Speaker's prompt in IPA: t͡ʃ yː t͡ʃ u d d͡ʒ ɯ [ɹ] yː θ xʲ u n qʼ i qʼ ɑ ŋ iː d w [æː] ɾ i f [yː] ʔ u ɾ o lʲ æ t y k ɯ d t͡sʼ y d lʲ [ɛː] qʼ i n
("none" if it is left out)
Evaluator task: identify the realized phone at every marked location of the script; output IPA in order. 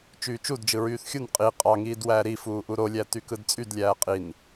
ɹ, æː, uː, æː

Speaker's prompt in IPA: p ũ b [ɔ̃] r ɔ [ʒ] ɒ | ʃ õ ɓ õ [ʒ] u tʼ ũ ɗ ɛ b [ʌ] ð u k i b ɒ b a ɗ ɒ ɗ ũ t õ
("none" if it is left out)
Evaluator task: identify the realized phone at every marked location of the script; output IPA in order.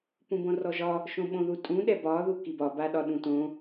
õ, ʒ, ð, ɒ

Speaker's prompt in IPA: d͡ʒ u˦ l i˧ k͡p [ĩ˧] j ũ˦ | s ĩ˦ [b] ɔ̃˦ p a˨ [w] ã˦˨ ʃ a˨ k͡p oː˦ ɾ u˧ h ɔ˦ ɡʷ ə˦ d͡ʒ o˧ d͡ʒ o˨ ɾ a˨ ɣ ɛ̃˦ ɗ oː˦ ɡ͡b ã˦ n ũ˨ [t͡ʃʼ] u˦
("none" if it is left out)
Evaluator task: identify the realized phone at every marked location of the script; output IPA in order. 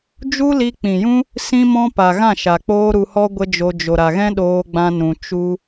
ĩ˨, m, ɣ, t͡ʃ

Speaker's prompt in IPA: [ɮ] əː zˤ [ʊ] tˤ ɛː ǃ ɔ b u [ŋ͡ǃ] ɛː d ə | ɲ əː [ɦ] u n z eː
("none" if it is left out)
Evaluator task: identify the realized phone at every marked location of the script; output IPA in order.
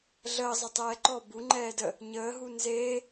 ɮ, ə, ŋ͡ǃ, ɦ

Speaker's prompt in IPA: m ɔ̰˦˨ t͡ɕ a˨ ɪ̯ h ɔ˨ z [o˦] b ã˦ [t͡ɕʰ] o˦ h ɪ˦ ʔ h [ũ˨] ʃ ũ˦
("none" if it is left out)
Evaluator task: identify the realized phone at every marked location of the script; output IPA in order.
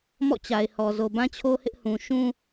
o˨, t͡ɕʰ, ũ˨

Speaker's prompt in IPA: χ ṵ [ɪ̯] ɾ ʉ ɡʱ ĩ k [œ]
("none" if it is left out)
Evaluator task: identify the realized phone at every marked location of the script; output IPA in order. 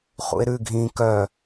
ɪ̯, œ

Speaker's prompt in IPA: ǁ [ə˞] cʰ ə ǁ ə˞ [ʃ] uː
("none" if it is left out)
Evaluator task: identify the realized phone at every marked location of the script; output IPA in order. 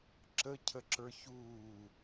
ə, ç

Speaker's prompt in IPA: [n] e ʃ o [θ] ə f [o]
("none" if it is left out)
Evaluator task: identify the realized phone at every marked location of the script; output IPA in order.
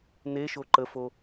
n, ǃ, o

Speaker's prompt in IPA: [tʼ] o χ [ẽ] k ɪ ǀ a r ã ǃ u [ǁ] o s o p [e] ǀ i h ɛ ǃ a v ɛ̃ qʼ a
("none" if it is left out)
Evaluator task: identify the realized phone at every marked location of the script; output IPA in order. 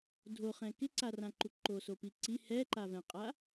dʱ, ɛ̃, ǃ, i

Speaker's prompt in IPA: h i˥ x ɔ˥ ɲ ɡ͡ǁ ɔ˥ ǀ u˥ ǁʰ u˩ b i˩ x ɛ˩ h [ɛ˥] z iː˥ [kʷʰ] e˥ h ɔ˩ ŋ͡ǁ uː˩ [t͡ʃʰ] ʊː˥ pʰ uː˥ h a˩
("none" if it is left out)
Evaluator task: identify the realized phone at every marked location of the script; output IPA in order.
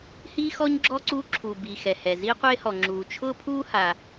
ɛ˩, qʷ, t͡ʃʰ

